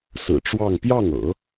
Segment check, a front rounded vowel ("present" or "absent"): absent